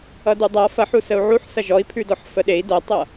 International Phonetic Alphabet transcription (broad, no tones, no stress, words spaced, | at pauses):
ʌdudˤa fɐħu səu̯ʕuħ sɐʒɔi̯pʰʉdɔħ fəɗei̯ dɐtˤʌ